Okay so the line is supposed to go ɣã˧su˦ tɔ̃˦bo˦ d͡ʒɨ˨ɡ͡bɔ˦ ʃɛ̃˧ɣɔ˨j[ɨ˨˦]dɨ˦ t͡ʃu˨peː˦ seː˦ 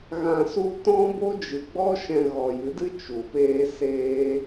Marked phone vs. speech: correct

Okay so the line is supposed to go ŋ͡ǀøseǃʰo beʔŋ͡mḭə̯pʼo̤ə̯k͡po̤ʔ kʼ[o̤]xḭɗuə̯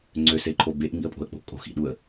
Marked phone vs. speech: correct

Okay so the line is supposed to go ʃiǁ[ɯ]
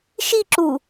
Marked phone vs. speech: incorrect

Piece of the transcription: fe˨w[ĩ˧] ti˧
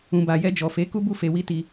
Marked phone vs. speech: incorrect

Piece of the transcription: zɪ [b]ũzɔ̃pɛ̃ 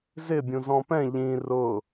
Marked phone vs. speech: incorrect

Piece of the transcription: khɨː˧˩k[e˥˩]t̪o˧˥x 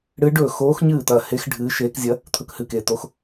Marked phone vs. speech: correct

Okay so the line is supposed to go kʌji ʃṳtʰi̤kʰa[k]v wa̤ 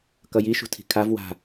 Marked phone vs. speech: incorrect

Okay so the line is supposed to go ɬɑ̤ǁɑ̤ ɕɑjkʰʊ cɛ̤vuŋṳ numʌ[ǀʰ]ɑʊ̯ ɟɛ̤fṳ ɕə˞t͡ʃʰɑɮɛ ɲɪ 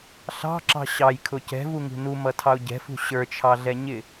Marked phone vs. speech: incorrect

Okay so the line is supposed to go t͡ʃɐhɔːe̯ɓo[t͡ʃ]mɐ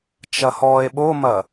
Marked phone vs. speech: incorrect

